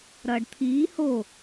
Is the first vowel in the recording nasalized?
no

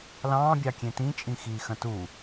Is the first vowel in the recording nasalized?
yes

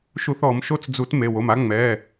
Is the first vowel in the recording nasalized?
no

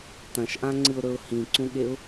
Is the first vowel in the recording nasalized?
yes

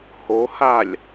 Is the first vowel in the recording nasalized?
no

